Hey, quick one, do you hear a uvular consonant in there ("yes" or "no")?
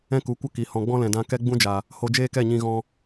no